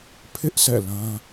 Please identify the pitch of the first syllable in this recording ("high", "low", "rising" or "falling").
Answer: high